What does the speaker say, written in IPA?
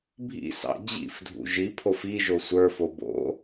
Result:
bʱḭsɑ̰ d͡ʑḭfdʱṵ ʒipʰof i ʒosʷə˞fo bo̰

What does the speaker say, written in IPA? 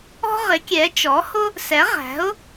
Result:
ɔ̤˥ʁɪ˩˥kʲɛ˩˥ t͡ʃɔ˩˥hʊ˥ | sɛ˩˥ ʁæ̤˩˥ʊ̯

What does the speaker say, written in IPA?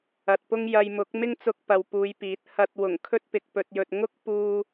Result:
ɐ˨t̚pʊ˥ŋ jɐ˧jmʊ˨˥k̚ mɪ˥ŋt͡sʊ˧k̚ pɐ˨wpuː˨˧jpiː˨˥t̚ hɐ˧t̚wʊ˨˩ŋ kʰɵ˥t̚pɪ˨k̚pɵ˧t̚jɵ˧t̚ ŋʊ˥k̚puː˧

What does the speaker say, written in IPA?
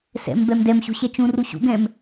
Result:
sɛ̰m bɛmdɛmɕṳ ɕɛt͡ʃũru ɕṵ ɡɛ̃m

